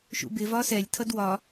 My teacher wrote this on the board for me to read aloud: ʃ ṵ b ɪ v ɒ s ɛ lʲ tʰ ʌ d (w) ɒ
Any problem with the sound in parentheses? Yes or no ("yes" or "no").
no